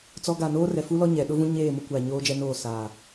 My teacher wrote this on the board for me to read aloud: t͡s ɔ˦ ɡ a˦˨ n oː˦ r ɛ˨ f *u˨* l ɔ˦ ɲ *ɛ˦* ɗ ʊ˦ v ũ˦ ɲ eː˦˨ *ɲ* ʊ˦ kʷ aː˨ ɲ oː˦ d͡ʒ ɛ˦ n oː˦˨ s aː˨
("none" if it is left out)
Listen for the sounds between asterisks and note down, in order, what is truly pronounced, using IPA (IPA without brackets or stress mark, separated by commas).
u˦, ɛ˨, m